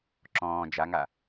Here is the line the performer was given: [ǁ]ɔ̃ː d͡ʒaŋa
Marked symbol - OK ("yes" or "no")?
yes